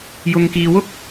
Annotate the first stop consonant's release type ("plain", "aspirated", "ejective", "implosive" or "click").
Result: plain